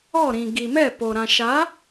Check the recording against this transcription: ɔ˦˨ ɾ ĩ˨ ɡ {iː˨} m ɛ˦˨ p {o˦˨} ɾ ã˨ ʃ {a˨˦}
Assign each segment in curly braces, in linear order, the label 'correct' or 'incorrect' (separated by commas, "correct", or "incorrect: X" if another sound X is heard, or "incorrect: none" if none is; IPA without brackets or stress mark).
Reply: incorrect: i˨, incorrect: o˨, correct